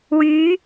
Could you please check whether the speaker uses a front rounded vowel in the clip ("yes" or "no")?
yes